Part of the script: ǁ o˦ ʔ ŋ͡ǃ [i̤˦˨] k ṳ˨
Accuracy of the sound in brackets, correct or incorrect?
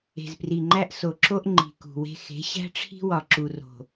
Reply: incorrect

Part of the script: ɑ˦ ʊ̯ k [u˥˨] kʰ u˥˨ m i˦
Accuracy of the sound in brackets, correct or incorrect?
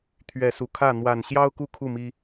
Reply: correct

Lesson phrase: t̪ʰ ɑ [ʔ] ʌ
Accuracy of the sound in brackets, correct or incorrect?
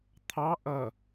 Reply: correct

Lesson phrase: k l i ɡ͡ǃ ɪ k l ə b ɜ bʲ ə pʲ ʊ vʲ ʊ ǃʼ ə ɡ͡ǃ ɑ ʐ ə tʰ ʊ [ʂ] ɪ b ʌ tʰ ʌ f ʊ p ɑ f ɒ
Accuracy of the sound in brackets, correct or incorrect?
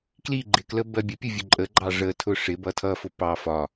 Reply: correct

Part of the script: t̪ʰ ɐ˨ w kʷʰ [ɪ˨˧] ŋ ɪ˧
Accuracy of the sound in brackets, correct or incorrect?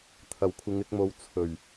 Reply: correct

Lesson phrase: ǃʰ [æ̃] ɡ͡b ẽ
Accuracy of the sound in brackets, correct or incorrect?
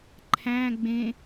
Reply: correct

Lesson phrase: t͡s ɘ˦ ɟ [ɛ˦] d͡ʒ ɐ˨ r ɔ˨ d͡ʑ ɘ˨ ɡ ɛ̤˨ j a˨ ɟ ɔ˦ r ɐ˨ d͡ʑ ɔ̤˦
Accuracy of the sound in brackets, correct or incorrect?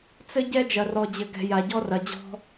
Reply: correct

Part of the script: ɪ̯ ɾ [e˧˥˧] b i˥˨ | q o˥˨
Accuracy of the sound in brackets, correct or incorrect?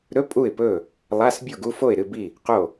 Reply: incorrect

